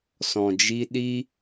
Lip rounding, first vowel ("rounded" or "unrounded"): rounded